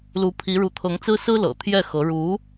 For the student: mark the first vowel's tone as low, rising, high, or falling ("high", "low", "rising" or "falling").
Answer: rising